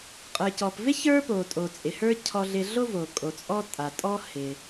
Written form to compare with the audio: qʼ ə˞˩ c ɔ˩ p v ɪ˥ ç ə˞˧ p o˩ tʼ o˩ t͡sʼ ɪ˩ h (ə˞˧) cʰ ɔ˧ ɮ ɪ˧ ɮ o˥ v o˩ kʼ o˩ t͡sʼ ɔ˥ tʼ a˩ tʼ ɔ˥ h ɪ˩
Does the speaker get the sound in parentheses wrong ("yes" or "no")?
yes